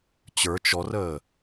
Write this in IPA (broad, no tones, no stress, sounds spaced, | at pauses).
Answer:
t͡ɕ ə˞ t͡ʃ ɔ r əː